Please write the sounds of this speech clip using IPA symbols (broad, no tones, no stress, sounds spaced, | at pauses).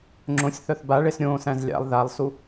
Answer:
ŋ͡ǁ õ sʲ θ œ θ b a ɭ e s ɾʲ õː s æ̃ z lʲ a̰ lˠ ð a lˠ s u